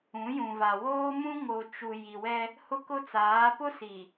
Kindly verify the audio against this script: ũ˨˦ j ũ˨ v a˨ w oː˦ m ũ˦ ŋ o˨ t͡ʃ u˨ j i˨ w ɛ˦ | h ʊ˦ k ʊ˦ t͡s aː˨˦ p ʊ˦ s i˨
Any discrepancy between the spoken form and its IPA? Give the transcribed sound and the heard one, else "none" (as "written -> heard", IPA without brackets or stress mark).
none